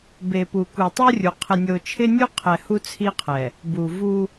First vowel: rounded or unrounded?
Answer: unrounded